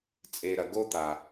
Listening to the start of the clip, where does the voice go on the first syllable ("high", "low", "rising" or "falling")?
low